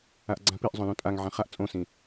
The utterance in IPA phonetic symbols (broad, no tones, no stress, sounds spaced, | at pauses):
a ʔ ɡ͡ǀ ã p i ʔ zˤ õ l ũ tʼ a ŋ ʕ ã χ a ʔ t͡sʼ õ s ĩ